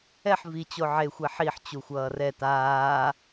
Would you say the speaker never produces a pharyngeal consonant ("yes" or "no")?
no